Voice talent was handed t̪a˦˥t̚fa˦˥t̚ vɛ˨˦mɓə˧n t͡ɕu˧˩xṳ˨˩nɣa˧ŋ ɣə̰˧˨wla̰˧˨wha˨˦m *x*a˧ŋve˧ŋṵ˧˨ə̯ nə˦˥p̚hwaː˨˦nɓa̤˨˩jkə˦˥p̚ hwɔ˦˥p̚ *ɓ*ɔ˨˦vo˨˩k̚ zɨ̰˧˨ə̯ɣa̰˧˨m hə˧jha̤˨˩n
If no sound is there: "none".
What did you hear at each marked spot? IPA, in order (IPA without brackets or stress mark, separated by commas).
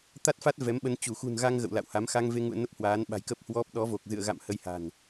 x, ɗ